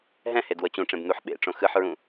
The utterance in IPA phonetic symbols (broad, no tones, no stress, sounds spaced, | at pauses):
ɦ ɛ̃ h e d w ɤ t͡ɕ ũ ʈ͡ʂ ẽ b n̪ u ħ ɓ ḛ ʈ͡ʂ õ x ɯ ħ ɹ ũ